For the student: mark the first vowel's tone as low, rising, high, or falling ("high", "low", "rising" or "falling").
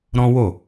high